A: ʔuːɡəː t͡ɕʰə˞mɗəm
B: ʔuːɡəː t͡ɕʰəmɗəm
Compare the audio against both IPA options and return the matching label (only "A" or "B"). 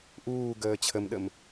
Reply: B